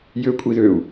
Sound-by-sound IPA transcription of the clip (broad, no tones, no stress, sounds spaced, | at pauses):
j ø kʷʼ i ð ø u̯